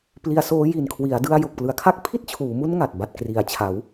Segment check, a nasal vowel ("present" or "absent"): absent